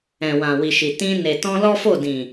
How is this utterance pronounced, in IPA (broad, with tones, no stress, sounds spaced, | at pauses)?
ɛ̃˨ w ã˨ w i˨ ʃ i˨ t ĩ˧ n e˨ t ɔ̃˧ l ɔ˦ f o˦˨ d ĩ˨